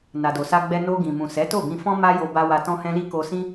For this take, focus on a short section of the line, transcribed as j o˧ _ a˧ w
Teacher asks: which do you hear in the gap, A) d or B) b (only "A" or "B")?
B